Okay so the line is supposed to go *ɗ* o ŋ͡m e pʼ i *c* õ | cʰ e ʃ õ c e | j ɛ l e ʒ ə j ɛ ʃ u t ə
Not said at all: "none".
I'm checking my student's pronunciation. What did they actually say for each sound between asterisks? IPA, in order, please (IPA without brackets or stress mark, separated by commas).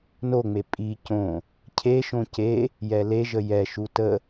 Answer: n, c